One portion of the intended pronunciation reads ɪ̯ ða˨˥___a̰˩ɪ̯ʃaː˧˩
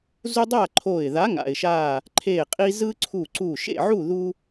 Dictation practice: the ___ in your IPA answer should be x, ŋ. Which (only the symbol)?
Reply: ŋ